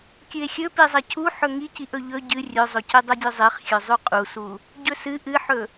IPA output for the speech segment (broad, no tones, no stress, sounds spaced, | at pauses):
kʲ ɨ e̯ xʲ ɵ p i zˤ ɐ cʰ u ħ ɵ ŋ i c i ʔ ɵ ʎ ɵ ɟ ɨ rʲ ɵ zˤ ɵ c i dˤ ɵ dʲ ɵ zˤ i χ xʲ ɵ zˤ ʉ qʼ u s u | ɟ ɵ s ɨ ʔ ɨ ħ ɵ